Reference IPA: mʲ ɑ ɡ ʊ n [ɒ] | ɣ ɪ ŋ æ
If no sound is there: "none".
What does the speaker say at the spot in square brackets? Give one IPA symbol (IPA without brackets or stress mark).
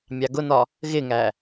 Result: ɒ